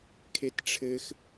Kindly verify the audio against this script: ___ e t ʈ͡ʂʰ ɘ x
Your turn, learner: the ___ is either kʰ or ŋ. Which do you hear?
kʰ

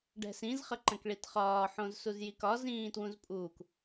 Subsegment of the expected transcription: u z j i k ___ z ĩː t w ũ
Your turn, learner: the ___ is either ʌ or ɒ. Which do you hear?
ɒ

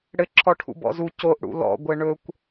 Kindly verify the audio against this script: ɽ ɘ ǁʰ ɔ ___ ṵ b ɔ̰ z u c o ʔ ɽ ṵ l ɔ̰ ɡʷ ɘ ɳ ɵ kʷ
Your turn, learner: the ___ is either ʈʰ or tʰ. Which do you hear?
ʈʰ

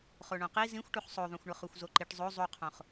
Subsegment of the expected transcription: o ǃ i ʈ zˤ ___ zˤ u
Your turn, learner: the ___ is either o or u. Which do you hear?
o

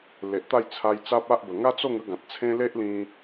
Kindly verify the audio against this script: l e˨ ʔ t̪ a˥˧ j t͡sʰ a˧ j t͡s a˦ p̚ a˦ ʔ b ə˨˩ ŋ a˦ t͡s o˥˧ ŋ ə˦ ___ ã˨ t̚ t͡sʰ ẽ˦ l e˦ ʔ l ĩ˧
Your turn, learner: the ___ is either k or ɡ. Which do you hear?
ɡ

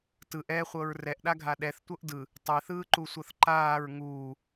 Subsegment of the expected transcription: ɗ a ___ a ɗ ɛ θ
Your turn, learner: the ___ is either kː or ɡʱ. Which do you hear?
ɡʱ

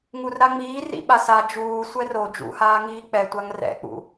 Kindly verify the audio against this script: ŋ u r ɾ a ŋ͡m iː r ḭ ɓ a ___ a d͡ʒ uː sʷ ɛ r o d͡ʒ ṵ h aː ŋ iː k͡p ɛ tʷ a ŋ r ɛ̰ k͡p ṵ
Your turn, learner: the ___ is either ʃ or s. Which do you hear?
s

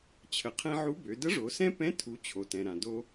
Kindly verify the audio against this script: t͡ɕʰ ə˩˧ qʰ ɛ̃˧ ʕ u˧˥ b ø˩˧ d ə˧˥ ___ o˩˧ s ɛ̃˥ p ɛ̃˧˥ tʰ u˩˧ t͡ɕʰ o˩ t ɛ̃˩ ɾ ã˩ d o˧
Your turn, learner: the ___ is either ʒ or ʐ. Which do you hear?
ʐ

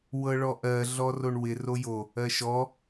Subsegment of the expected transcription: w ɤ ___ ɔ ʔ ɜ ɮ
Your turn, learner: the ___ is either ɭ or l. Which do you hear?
ɭ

